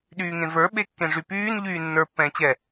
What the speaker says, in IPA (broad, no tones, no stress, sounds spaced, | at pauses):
ɗ yː ŋ ẽ v ə˞ ɓ e kː ẽ ʐ y p yː n ʎ yː nː ə˞ pː ɛ̃ː t͡ɕ ɛ